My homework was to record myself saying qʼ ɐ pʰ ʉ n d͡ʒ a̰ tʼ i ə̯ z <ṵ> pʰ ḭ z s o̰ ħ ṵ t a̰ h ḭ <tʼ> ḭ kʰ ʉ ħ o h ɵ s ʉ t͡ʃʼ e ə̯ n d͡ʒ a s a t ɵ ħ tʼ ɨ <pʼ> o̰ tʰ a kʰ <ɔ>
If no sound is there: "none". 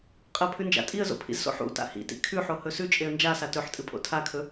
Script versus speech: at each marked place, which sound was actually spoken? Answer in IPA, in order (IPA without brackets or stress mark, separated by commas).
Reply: o̰, t, pʼ, ɵ